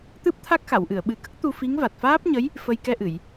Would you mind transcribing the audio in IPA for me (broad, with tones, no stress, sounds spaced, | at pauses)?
t̪ ɨ˦˥ p̚ t̪ʰ a˦˥ k̚ x a˨˩˨ w ʔ ɨ˨˩˨ ə̯ ɓ ɨ˨˩˦ k ə˦˥ k̚ t̪ u˧ f i˧˥ ŋ v a˨˩ t̚ f aː˦˥ p̚ ɲ ə˧˥ j | f ə˧ j k ɛ˧ ʔ ɨ˨˩˨ j